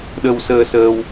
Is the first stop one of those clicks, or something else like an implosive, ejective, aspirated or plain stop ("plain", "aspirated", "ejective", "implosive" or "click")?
implosive